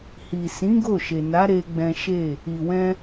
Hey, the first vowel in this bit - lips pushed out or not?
no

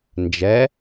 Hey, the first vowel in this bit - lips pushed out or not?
no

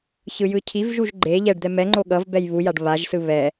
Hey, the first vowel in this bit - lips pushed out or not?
no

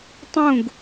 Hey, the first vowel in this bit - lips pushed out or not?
yes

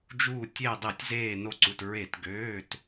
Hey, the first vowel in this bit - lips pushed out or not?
yes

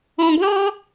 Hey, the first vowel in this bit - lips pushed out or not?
yes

